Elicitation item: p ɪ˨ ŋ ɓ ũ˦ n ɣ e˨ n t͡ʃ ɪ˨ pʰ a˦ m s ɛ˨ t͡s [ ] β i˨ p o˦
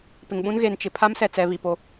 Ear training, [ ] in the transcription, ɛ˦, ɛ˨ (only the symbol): ɛ˨